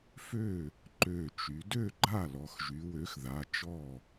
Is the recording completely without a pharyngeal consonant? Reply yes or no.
yes